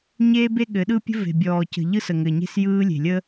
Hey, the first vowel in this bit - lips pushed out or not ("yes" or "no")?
no